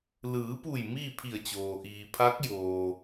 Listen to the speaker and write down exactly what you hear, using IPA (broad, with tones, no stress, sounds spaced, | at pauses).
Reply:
l ɯː˩˧ p u˧˩ j m iː˥˨ pʰ i˧˩ ə̯ t͡ɕ oː˩ ʔ iː˩ pʰ a˧˥ k̚ j oː˩